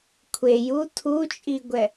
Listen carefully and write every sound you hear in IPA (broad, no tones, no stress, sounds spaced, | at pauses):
kʷʰ e j u tʰ u t͡ʃʼ i ɡʷ ɛ